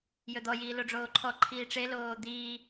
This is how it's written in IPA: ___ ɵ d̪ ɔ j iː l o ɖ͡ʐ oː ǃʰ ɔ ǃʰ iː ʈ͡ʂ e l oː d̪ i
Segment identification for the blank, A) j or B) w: A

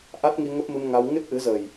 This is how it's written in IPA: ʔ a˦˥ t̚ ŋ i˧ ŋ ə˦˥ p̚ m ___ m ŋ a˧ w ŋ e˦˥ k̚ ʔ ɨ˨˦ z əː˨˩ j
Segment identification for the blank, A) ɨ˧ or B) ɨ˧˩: A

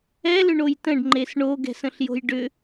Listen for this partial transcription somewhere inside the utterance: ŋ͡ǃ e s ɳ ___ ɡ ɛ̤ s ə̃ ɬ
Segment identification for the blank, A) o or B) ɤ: A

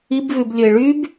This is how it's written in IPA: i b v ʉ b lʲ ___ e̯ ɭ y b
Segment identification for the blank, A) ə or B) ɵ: B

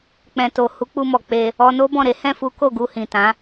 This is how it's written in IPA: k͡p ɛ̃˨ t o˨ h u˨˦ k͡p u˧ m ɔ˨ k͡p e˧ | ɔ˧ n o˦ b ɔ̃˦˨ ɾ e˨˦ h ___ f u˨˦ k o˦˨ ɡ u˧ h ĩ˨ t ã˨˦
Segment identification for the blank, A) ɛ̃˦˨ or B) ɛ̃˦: A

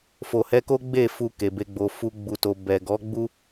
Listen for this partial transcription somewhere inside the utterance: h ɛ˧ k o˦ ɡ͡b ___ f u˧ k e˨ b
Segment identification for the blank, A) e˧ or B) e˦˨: B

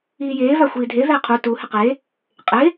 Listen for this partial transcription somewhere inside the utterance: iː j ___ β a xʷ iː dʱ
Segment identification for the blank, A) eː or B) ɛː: A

